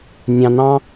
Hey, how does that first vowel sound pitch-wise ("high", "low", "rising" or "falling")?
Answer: low